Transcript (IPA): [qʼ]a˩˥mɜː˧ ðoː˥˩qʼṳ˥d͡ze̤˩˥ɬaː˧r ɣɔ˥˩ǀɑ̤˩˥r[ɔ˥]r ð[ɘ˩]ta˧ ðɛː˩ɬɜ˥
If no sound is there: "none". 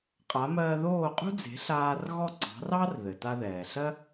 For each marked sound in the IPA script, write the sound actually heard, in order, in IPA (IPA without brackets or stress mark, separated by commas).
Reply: qʼ, ɑ˥, ɘ˩